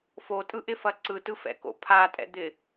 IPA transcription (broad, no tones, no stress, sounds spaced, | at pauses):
f o tʼ ɯ ʔ ɪ f ɐ ǀ ɯ t ɯ f ɛ̰ k o̰ pʰ a tʼ ɛ̰ d̪ ɪ